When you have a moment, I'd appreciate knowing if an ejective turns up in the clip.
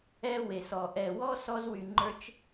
no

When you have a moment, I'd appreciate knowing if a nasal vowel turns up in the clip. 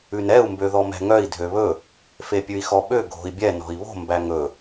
no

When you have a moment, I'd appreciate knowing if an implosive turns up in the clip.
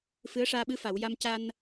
yes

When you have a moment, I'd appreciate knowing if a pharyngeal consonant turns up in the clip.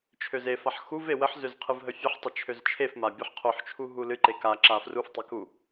yes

